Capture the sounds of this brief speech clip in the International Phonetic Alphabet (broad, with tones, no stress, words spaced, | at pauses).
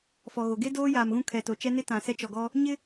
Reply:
fɔ˨ɣo˨ ɡe˦ doː˦jaː˨mɣũ˦ kʰɛ˨to˨t͡ʃɛ˦nɪ˦ tã˨sɛ˦t͡ʃɔ˨ɡɔ˦ | ɲɪ˦